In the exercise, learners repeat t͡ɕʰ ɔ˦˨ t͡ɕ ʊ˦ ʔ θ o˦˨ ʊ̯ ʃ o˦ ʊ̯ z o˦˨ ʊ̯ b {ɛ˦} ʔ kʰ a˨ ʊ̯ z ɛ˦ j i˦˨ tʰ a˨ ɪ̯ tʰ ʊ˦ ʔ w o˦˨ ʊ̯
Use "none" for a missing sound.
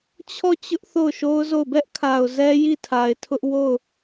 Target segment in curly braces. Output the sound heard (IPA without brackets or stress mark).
ɛ˦